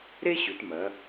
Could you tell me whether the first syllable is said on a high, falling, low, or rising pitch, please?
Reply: high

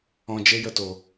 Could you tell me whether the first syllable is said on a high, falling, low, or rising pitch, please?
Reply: low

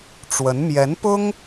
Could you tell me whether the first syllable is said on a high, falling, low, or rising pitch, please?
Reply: rising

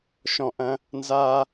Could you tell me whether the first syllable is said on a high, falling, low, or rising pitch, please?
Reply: low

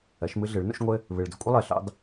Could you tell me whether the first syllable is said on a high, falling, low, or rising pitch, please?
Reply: rising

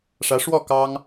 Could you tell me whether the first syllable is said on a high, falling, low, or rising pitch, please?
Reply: rising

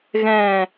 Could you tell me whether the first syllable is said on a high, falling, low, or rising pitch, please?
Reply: low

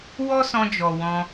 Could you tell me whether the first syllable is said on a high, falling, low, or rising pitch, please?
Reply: high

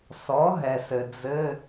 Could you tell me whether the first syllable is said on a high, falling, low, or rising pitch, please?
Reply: rising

